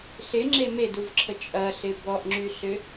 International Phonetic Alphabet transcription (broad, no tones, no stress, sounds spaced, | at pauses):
ɬ ɪ ŋ͡ǁ e m e d u v ǁʰ ə t͡ʃʼ ɐ ɬ ɪ b ɔ ʔ ŋ͡ǁ y ɬ ʏ